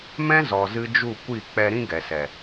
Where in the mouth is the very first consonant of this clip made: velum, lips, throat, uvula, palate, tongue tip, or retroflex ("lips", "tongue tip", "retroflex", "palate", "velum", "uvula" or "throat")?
lips